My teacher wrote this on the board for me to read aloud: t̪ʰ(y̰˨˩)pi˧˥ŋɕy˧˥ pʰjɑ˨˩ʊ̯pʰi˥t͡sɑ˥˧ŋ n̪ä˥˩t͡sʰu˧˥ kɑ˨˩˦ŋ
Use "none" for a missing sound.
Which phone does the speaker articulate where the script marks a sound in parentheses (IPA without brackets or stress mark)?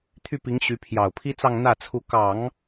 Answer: y˥˩